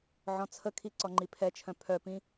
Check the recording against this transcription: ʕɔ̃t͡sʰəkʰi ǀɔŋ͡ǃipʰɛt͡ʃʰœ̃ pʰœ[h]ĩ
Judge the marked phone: incorrect: p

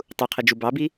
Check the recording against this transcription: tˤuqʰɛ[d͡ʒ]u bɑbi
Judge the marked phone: correct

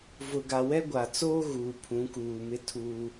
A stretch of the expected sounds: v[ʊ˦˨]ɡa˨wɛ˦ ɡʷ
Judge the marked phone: incorrect: ʊ˨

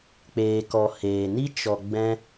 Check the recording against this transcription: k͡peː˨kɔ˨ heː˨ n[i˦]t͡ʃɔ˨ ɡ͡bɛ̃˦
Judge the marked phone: correct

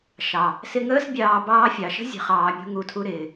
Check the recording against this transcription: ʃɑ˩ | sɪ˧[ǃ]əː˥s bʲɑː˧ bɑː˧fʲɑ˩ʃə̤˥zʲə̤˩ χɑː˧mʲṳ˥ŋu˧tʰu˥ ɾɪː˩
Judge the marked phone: incorrect: ŋ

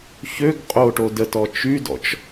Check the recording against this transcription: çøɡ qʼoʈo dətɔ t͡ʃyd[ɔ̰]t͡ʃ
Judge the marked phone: correct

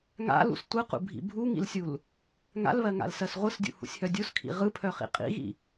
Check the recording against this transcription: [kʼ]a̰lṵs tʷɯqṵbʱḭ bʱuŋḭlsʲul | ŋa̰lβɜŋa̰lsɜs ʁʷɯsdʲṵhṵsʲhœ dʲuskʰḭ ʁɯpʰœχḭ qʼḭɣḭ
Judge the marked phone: incorrect: ŋ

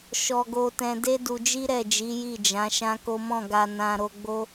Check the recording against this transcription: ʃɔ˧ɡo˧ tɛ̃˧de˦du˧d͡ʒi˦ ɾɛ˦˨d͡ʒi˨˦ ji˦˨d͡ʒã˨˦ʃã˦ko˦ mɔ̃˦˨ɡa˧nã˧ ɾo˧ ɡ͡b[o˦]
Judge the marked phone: correct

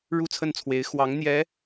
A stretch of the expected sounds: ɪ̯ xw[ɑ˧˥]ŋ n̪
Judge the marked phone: correct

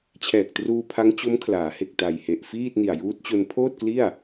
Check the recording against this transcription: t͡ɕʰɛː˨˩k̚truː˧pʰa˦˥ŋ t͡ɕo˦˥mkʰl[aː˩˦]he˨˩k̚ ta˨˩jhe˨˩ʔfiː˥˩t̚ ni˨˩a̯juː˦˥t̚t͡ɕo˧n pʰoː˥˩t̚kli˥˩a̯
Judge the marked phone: correct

